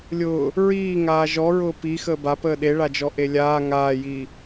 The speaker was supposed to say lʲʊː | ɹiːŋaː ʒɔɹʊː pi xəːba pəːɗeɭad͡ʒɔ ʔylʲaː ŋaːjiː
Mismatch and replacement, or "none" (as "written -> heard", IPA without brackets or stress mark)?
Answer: y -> e